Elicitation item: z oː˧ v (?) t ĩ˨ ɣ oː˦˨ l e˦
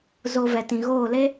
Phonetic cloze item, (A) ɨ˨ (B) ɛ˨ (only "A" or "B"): B